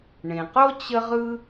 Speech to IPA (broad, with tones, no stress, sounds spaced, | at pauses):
ɳ ẽ˩ q o˥ t͡ɕ ə˥ ʁ ɯ˥